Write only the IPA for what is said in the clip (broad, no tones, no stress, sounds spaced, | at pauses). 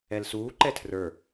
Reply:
ɛ l s uː ǃ ɛ tʰ r ə˞